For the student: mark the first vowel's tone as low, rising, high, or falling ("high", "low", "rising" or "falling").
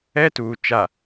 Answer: high